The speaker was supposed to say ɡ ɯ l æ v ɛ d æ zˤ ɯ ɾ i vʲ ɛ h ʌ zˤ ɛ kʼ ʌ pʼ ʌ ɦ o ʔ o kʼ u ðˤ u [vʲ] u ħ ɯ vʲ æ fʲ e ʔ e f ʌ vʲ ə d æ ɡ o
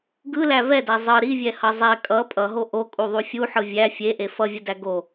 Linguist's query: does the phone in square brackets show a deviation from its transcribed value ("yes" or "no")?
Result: yes